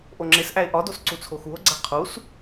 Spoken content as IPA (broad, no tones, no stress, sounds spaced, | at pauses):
ʔ o ŋ͡ǁ e s ʔ æ e̯ ʔ ɒ d o s ǀ u t͡sʰ o x u o̯ ɡ͡ǀ æ qʰ u s